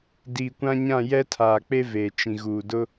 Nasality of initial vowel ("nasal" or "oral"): oral